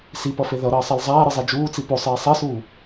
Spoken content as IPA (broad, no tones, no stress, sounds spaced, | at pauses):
s i p ʌ f e ð ʌ ɾ ʌː sˤ ɛ l zˤ aː ɾ ɯ zˤ e d͡ʒ uː t͡s i p o sˤ eː sˤ ɛ s uː